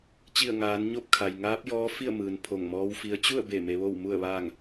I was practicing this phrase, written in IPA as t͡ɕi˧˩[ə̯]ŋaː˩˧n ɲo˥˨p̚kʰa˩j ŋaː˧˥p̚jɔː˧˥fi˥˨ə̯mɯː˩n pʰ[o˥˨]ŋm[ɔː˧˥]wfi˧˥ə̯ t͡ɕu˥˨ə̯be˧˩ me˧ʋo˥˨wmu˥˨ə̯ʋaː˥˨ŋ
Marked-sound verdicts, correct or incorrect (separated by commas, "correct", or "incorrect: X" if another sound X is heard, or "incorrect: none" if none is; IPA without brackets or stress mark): correct, incorrect: o˧˩, correct